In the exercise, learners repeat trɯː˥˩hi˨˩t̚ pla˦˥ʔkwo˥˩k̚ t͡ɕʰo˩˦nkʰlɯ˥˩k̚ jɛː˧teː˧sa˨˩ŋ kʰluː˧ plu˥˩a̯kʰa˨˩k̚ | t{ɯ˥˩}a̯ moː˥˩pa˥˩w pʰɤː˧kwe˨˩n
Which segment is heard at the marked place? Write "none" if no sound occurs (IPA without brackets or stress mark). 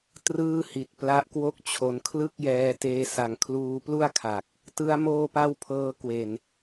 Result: ɯ˦˥